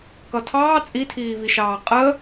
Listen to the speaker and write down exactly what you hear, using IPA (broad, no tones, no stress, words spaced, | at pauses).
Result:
kʌtʰɑː t͡sʼitʰiːviʃɑː qʼə